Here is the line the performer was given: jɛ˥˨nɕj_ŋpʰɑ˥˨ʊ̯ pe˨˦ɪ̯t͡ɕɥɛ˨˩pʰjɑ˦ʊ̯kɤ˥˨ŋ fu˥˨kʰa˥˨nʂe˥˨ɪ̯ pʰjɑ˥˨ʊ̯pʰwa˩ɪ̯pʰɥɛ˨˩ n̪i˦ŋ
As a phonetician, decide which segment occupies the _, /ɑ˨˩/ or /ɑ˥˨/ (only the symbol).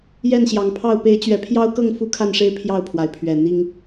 ɑ˨˩